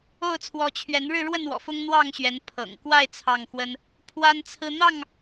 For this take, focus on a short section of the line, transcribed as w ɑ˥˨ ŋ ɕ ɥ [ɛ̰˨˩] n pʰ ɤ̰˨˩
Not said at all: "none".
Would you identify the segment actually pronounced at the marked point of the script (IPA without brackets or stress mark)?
ɛ˨˦